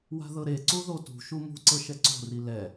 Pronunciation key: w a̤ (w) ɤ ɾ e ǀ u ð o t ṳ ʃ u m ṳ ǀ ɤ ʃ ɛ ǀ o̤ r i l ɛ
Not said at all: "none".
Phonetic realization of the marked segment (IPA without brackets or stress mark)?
ð